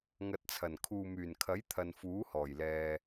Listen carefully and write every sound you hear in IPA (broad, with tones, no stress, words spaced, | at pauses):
ŋɐ˨t̚t͡sʰɐ˨˩n kʰuː˨myː˨˩nkʰɐ˨˥j t̪ʰɐ˨nfuː˨˥hɔː˨˩jlɛː˨